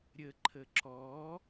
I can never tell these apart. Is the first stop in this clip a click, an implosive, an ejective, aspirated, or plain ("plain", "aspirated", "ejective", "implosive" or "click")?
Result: click